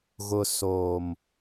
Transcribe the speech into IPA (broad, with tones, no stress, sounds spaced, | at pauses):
ɣ ʊ˨ s oː˨ m